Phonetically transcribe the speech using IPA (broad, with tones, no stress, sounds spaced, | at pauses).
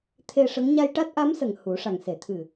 t̪ʰ e˧ ʂ ə˧˥ ŋ ɲ a˧ j ʈ a˦˥ t̚ ʔ a˧˥ m s ə˨˩ ŋ h u˨˩˦ ʂ a˨˩ ŋ s e˨˩˨ t̪ʰ ɨ˨˩